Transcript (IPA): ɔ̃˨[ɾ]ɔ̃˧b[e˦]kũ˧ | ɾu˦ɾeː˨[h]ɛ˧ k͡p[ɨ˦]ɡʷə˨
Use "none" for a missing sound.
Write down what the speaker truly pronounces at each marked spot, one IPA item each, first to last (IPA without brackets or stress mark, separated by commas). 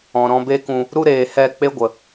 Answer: ɾ, e˦, h, e˦